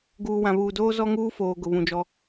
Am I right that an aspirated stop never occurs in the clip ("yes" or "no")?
yes